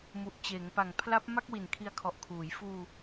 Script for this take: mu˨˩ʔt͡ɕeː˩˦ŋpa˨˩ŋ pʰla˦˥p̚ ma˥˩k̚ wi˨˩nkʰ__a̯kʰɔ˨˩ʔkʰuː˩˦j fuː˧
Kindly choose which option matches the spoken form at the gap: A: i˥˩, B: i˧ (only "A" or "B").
B